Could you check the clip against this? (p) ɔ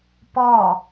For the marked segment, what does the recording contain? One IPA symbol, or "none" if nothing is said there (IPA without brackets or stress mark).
p